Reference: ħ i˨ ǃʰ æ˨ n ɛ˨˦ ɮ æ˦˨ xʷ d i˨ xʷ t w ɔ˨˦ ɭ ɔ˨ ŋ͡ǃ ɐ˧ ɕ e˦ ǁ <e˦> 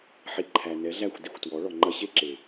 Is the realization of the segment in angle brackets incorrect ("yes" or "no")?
yes